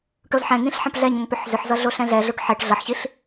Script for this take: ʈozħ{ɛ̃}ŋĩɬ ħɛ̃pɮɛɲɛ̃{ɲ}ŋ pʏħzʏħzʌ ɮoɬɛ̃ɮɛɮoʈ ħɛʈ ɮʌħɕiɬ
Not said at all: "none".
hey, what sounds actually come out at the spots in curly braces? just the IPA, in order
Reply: ɛ̃, none

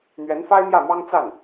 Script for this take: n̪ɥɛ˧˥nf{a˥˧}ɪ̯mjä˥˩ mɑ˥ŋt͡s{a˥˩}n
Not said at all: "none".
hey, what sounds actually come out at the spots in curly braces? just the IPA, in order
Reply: a˥, a˥˩

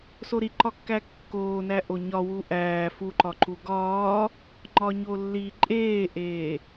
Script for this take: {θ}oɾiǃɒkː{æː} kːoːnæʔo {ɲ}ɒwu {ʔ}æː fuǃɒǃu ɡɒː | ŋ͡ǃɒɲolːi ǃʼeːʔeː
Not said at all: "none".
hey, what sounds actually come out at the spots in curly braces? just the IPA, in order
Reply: s, æ, ɲ, ʔ

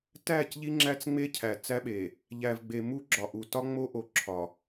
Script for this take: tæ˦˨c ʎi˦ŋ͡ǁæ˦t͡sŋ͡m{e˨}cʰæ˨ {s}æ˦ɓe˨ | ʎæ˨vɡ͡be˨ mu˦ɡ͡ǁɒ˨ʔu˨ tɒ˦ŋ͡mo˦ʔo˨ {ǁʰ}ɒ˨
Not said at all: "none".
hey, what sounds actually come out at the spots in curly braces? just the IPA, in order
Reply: e˦, t͡s, ǁʰ

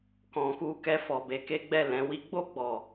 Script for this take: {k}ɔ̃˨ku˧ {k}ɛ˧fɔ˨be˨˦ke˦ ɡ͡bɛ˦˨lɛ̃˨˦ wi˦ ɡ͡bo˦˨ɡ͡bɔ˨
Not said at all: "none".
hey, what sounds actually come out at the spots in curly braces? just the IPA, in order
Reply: k, k

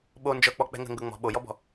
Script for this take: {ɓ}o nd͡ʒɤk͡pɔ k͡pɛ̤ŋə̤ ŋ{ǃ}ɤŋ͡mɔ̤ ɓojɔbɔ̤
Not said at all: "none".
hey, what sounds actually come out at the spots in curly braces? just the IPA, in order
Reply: ɓ, ɡ

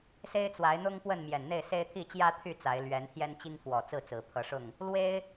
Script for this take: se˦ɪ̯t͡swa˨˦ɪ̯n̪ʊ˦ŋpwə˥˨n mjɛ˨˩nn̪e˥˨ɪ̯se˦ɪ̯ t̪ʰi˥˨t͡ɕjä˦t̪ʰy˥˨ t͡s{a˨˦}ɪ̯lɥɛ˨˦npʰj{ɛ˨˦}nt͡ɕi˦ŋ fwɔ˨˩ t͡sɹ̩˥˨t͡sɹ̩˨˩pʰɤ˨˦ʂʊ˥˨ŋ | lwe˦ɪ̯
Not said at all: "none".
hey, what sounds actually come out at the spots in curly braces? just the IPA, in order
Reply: a˨˦, ɛ˦

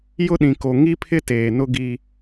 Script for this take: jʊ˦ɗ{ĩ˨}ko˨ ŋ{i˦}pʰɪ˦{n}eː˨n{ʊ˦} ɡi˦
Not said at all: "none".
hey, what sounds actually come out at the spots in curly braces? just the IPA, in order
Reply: ĩ˨, i˦, t, ʊ˦

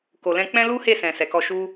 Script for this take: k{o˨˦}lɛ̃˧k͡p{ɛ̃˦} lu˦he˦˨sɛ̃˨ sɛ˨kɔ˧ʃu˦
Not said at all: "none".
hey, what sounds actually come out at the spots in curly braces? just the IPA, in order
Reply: o˨, ɛ̃˦

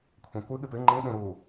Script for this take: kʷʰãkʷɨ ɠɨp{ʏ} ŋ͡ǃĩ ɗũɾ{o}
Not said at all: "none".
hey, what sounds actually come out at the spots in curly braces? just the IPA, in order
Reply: ɨ, u

